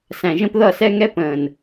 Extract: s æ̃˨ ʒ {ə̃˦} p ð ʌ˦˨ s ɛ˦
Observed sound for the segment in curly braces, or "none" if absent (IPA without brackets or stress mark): ə̃˦